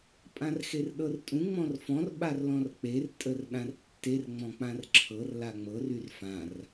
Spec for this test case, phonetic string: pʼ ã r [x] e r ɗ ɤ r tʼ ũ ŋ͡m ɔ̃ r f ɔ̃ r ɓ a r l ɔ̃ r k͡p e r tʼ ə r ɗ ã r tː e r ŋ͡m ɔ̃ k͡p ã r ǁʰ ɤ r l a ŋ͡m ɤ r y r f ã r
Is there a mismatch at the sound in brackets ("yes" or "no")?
no